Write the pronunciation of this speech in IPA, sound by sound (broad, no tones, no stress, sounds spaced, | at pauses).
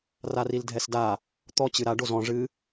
r a r i l dʱ ɛ s d a | t̪ ɔ t͡ɕ ɨ ɾ a ɖ o z ɔ̃ ʐ ɨ